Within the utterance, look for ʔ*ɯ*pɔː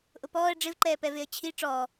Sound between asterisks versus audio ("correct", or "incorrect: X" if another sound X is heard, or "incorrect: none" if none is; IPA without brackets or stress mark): incorrect: ʊ